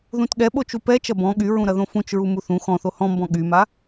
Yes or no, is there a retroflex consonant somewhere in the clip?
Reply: no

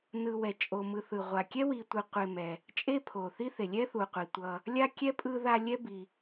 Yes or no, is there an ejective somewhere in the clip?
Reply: yes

